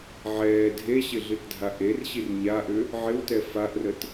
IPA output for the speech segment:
ʕ ɛː dʱ e ɕ ɪ ɮ ɨ t dʱ a ʔ e r ɕ i r ɲ a ʔ ʏ | ʕ ɪ w t ɛ f a ʔ r ə t

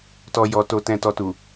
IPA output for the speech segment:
t ɔ˨ j ɔ˨ t o˨ t ɛ̃˨ t ɔ˨ t u˨

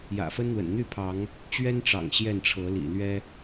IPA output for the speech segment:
j ä̰˨˩ f ə˦ n n̪ w ə̰˨˩ n n̪ y˥˨ pʰ ɑ˨˦ ŋ | t͡ɕ ɥ ɛ˦ n ʈ͡ʂ ɑ̰˨˩ ŋ ɕ j ɛ˥˨ n ʈ͡ʂʰ ɤ˨˦ l ḭ˨˩ l ɥ ɛ˦

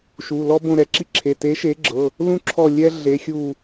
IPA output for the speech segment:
ʃ u˩˧˩ l ɔ˥ b õ˦˨ ɾ ɛ˨˦ ǁ i˥ ǁʰ e˩˧˩ t e˨˦ ʃ e˨˦ ɡ͡ǁ ɤ˩˧˩ | l ũ˥ ǁʰ ɔ˦˨ lʲ ɛ˥ ɮ e˨˦ xʲ u˦˨

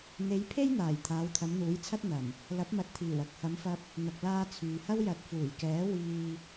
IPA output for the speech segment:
n̪ e˨˧ j pʰ e˥ j n̪ aː˨˩ j t̪ʰ aː˨˧ w t̪ʰ ɐ˨˧ m n̪ uː˨˥ j t͡sʰ ɐ˥ t̚ n̪ ɐ˨˩ m | l ɐ˨˥ p̚ m ɐ˨˥ t̚ t̪ʰ iː˨˩ w ɐ˨ k̚ h ɐ˨˧ m f ɐ˧ p̚ | n̪ ɐ˨ k̚ l aː˧ t͡sʰ yː˨ h ɐ˥ w j ɐ˨˥ t̚ f uː˨˩ j k ɛː˨˥ w iː˧

